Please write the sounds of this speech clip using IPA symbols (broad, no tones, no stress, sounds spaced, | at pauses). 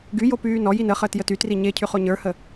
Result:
ɡ y j o p yː n ɔ j i n ə χ əː t j ə t y t r i ɲ e cʰ y χ o ɲ ə˞ h ə